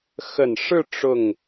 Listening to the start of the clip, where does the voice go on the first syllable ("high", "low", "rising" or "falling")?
low